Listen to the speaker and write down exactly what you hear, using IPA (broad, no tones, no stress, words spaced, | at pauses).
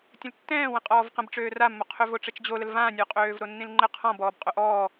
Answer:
tʲə̃ltːɛ̃ːwə̃qʼɔːv qə̃b ʈ͡ʂøːramːoqʰøv oʈ͡ʂət͡ʃd͡ʑoləl vãnʲo qʼøːvɾonːĩlŋ͡ǃə qʰɔ̃bɔːbqʼo ʔɔː